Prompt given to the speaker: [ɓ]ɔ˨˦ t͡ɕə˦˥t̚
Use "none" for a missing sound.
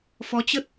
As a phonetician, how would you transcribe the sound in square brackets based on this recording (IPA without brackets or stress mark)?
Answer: f